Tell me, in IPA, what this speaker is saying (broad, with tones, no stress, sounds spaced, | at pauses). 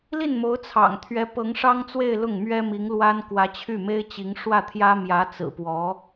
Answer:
l i˥˩ n m o˧˥ ʊ̯ t͡sʰ ɑ̰˨˩ ŋ t̪ʰ ɥ ɛ˧˥ p ɤ˧˥ ŋ ʂ ɑ˥ ŋ t͡s w e˥˧ ɪ̯ l ʊ˥˩ ŋ m ɥ ɛ˥ m i˧˥ ŋ l w a˥ n k w ä˧˥ t͡ɕʰ y˥˩ m e˥ ɪ̯ t͡ɕ i˧˥ ŋ ʂ w ä˥˩ t̪ʰ j ä˥ m j ä˧˥ t͡s ɹ̩˨˩ p w ɔ˧˥